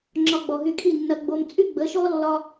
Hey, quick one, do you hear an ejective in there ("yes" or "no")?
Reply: yes